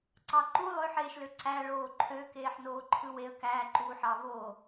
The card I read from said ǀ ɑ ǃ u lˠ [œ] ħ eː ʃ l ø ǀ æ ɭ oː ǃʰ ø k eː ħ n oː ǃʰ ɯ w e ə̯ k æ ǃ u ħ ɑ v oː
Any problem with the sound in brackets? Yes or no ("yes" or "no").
yes